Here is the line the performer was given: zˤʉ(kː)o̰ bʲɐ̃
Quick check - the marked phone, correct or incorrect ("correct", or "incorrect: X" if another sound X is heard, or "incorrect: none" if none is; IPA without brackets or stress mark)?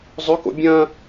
incorrect: k